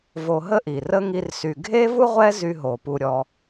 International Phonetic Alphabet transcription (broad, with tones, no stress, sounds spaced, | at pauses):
v o˧ ɦ ə˥ ʔ i˩ r ə˥ ŋ i˧ r s y˩ ɡʱ e˥ v u˥ ʁʷ ɛ˥ z y˧ ɦ o˩ p u˩ ɾʲ ɔ˩